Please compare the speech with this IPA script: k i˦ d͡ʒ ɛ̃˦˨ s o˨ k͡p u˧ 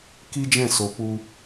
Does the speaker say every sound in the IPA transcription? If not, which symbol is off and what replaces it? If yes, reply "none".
none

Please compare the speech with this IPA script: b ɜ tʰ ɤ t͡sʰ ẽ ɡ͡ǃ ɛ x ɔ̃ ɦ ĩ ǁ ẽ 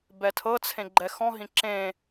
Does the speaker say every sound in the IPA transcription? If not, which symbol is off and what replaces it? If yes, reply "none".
ɜ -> ɛ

